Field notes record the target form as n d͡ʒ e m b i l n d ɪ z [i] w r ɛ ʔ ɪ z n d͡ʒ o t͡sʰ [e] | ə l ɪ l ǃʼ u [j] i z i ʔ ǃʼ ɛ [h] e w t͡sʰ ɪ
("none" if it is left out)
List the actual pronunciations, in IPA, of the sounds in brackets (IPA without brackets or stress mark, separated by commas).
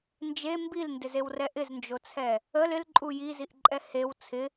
e, ɛ, j, h